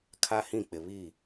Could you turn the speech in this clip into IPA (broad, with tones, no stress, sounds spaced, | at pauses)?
kʰ a˦ h ĩ˦˨ k͡p ɪ˨ β i˦˨